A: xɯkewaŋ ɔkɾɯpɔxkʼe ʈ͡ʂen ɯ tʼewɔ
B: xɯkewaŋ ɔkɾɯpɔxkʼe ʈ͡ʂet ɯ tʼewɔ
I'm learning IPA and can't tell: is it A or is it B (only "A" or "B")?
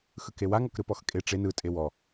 A